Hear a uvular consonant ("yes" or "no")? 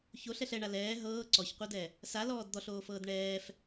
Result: yes